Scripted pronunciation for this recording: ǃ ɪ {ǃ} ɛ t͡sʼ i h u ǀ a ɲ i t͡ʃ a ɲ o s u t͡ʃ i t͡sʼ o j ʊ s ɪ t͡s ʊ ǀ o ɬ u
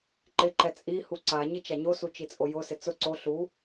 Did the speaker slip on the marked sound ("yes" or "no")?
no